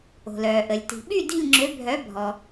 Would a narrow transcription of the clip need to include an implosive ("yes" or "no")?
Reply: yes